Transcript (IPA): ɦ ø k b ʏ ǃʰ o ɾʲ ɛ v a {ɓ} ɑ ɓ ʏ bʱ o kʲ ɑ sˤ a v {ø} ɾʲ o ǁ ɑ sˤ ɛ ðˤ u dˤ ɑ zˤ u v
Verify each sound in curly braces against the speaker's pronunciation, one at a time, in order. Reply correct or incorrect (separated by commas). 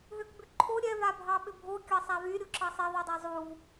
incorrect, incorrect